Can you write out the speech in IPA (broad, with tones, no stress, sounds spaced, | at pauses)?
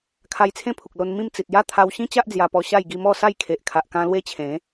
kʰ a˧ j t͡sʰ ẽ˦ pʰ u˨ k̚ l o˧ n m ĩ˥˧ m t͡s i˨ t̚ j a˦ t̪ʰ a˧ w ɕ ĩ˦ t͡ɕ a˦ ʔ d͡z j a˧ p ɔ˧ ɕ a˥˧ j ɡ i˧ m ɔ˥˧ s a˥˧ j kʰ e˨ ʔ kʰ a˨ ʔ k ã˧ l w e˦ t͡ɕʰ ẽ˨˦